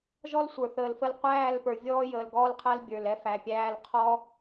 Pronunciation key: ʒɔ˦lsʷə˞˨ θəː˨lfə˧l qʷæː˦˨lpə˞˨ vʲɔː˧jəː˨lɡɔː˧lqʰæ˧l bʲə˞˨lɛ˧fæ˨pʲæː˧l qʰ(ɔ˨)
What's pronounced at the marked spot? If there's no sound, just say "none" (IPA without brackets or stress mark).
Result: ɔ˧